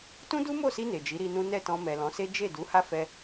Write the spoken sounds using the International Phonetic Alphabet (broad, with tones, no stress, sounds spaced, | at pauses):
t ũ˦ d u˦ m o˦˨ s i˧ n e˨ d͡ʒ i˨˦ ɾ i˧ n ũ˦ n ɛ˦˨ t ɔ̃˧ m ɛ˨ l ɔ̃˨˦ s e˦ d͡ʒ e˦˨ d u˨˦ h a˦ f ɛ˧